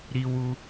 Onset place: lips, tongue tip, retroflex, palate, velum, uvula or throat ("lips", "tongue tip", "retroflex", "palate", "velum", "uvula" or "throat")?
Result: tongue tip